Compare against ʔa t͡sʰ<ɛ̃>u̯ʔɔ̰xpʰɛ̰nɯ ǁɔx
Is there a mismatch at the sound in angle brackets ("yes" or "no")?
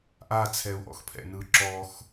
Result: yes